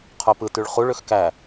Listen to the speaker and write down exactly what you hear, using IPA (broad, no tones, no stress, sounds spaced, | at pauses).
qʰ o p ɯ t y ɭ χ u ɭ ø x k æ